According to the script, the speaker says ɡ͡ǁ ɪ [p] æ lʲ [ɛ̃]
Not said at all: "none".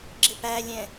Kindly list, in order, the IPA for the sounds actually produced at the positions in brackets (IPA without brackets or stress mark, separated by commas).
p, ɛ̃